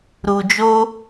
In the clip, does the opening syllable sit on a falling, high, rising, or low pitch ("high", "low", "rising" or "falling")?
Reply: low